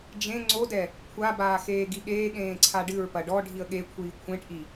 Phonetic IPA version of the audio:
d͡ʒ ẽ ŋ͡ǀ o d ɛ | kʷʰ a b aː x eː ɡ i ɠ eː ɠ ẽː ǀʰ a ɖ ɨ ɹ p ɐ ɖ ɔ ɖʱ i ə̯ ɠ e kʷʰ iː kʷʰ ẽ ʈ ʔ i

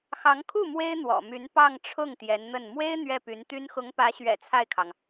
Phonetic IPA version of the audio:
x ɑ˧˥ ŋ kʰ u˥˩ m w e˥ ɪ̯ n̪ w ɔ̰˨˩ m y˧˥ n p ɑ˥˧ ŋ ʈ͡ʂʰ ʊ˥˩ ŋ t̪ j ɛ˧˥ n n̪ ə˥˩ n m w e˥ ɪ̯ n̪ ɥ ɛ˥˩ p y˧˥ n t̪ y˥ n x ʊ˧˥ ŋ p ä˧˥ ɕ ɥ ɛ̰˨˩ t͡sʰ a˥˩ ɪ̯ kʰ ɑ˩ ŋ

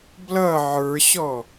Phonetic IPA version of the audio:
b l ʌ ʕ ə˞ ɕ ɔ

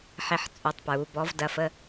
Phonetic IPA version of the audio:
ħ e˧ ħ t͡sʼ u˩˧˩ tˤ p ɹ u˩˧ b ɔ˩˧ v d ɐ˩˧ f ə˩˧˩

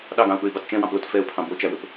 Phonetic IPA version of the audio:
ɗ ɑ ɡ ɑ̃ ʊ̯ ɓ ɵ ɪ̯ b ɑ t t͡ʃ ɛ̃ w ɑ̃ p l o t f ɛ ʊ̯ pʰ ɑ̃ b o t͡ʃ æ w ɵ p

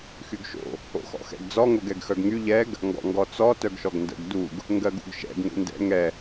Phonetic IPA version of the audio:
x y ɡ ʃ o̰ | o̰ x ɔ̰ x ɛ̰ ɡ d͡z ɔ ŋ o ɡ ɛ ɡ x œ ɡ ŋ y ʎ ɛ ɡ | ŋ ɡ ɔ̰ ŋ ɡ ɔ t͡s ɔ t œ ɡ ʃ ɔ ɡ n d ə̰ ɡ d u ɡ | ŋ ɡ ɜ ɡ ṵ ɡ ʃ ɛ̰ ɡ ŋ ṵ n d ɛ̰ ŋ ɛ

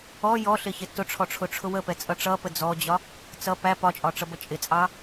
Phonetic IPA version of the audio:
ɔ j ɔ ɬ ɪ ç ɪ t ʊ ʈ͡ʂʰ ɔ ʈ͡ʂʰ ʊ ʈ͡ʂʰ ʊ w ə p ɛ t͡sʼ ʌ ʈ͡ʂ ʌ p ə d͡z ɔ d͡ʑ ɒ | t͡s ʌ p æ p ɒ t͡ʃʼ ɒ ʈ͡ʂ ʌ b ʌ t͡ʃʼ ɪ t͡sʼ ɑ

